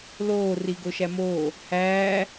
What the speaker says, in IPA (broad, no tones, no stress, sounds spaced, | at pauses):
l oː r i ɡ o ʃ æ m oː | h æː